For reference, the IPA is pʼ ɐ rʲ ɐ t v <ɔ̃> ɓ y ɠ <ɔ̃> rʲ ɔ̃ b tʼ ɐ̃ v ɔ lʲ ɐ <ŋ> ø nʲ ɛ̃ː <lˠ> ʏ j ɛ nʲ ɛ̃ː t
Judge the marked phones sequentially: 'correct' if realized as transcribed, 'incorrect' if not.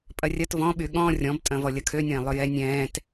correct, correct, incorrect, correct

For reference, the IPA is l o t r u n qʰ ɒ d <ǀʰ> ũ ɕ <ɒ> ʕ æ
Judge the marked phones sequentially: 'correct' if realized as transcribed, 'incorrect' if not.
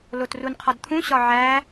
incorrect, correct

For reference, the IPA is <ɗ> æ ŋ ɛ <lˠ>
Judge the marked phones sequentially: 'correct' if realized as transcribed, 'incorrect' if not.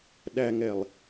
correct, correct

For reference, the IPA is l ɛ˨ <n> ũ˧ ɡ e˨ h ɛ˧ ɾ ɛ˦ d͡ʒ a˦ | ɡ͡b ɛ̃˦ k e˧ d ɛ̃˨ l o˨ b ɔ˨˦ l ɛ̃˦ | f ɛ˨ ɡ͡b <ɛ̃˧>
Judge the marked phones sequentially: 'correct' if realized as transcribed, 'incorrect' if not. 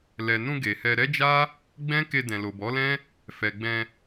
correct, correct

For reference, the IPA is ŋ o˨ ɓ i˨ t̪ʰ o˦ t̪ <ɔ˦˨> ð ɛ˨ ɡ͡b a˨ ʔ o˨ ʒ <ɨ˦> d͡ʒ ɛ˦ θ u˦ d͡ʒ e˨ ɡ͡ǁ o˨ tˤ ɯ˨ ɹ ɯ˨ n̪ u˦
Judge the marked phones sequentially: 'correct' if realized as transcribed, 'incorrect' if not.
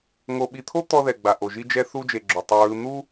incorrect, incorrect

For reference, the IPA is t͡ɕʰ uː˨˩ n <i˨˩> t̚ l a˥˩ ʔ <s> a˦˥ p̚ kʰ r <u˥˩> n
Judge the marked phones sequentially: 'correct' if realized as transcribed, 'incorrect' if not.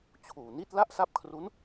incorrect, correct, incorrect

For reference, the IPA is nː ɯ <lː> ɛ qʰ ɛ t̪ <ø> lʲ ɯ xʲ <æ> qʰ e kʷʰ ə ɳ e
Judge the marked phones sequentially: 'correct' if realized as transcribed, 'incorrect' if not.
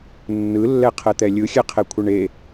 correct, incorrect, incorrect

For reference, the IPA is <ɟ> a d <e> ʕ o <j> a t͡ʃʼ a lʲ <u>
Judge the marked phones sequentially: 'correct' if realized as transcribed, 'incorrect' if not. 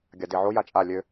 incorrect, correct, correct, incorrect

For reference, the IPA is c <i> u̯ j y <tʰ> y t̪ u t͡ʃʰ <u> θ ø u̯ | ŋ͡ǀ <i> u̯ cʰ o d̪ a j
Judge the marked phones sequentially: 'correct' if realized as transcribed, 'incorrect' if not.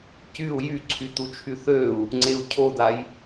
incorrect, incorrect, incorrect, incorrect

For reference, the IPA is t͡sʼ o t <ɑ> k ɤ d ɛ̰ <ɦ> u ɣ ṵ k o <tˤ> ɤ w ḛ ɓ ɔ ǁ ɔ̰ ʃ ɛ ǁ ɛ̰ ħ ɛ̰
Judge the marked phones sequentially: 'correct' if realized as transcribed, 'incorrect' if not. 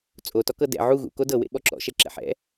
incorrect, incorrect, incorrect

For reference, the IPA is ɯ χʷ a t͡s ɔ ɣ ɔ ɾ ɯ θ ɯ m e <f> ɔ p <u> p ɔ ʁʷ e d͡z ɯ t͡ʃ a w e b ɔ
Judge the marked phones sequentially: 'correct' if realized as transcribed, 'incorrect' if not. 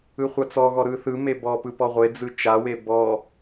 incorrect, incorrect

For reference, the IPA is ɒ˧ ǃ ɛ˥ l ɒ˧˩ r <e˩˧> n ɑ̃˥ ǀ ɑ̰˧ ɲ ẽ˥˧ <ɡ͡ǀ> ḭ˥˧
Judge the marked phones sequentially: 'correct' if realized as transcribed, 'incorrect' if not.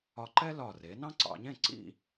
correct, incorrect

